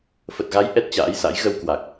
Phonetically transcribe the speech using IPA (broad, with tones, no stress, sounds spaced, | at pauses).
f ə˨˩ t̚ ɣ a˨˦ j ʔ ɛ˦˥ t̚ t͡ɕ a̰ː˧˥ j s a̰˧˥ j ɣ ə˧ w k w a˨˩ k̚